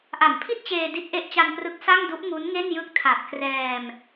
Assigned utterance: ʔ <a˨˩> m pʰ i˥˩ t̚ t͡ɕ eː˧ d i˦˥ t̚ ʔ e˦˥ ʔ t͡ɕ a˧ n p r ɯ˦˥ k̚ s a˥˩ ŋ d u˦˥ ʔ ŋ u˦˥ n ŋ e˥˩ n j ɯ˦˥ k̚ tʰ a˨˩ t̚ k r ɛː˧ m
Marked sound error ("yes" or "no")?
yes